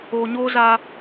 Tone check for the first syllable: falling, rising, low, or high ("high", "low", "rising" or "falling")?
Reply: low